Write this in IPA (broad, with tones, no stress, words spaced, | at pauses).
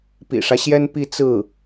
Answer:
pḭ˨˩ʂä˦ɕjɛ˥n pi˥˧t͡sɹ̩˥˩